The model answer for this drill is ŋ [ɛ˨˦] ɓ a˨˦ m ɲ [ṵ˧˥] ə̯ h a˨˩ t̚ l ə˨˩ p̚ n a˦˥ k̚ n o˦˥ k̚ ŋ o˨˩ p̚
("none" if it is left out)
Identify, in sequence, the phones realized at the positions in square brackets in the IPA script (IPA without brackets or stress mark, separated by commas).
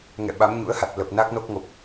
ɛ̰˧˨, ṵ˧˥